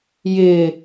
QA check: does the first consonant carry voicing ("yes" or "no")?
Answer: yes